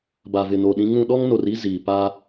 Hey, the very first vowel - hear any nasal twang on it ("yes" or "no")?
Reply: no